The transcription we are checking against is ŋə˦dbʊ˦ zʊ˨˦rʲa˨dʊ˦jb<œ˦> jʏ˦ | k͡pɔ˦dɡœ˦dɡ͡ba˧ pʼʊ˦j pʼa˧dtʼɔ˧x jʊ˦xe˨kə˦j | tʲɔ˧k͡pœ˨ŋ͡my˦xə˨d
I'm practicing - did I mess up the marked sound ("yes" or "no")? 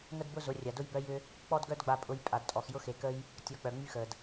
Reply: no